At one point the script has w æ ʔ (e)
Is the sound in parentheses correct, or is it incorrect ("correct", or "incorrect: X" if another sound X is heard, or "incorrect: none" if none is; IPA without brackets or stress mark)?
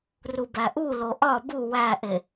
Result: correct